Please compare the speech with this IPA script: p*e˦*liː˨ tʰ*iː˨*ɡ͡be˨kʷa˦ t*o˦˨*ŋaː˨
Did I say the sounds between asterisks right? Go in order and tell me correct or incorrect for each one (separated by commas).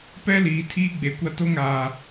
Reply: incorrect, incorrect, incorrect